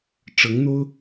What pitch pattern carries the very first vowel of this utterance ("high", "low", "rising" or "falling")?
rising